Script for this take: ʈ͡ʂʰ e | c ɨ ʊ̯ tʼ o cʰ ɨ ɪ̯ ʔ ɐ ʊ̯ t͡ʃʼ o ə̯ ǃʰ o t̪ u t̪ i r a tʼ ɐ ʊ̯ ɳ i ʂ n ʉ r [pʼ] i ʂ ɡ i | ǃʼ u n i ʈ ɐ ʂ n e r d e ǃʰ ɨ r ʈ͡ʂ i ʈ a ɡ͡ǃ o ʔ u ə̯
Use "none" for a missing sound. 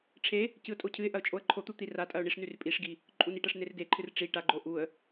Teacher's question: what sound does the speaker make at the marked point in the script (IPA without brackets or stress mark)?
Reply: pʼ